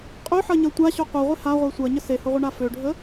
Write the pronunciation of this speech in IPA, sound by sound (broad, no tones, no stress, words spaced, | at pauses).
qʼøħɐɲɐ tʷaɕʊ qʷɛʁʷe haʁʷɛ sʷɐɲə sehʊʁʷəɳa føɖʱə